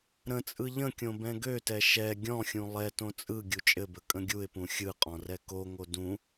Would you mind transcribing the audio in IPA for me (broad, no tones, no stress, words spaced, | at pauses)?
ɾə̃t͡sʼɯ ʎə̃kʲõ bɛ̃ɡøtɛ ʃɛ ɡʲɔ̃xʲũ lˠɛtõ t͡sʼɯ ɡʲut͡ʃʼɘbə kʼə̃ɡʲuɪ̯pũ xʲɯqʼɔ̃ rɛkoŋo dũ